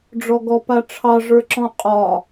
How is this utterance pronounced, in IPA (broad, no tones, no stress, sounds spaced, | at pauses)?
ɖ͡ʐ ɔ ɡ ɔ p a ʈ͡ʂʰ ɑ ʐ ə˞ ǁ ɔ̃ qʼ ɒ